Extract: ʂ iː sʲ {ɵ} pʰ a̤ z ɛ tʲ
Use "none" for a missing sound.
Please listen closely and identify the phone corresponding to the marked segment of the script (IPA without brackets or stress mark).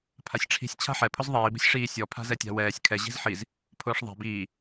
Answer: ɔ